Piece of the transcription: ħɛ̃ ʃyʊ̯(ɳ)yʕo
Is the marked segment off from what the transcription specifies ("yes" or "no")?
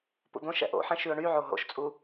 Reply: no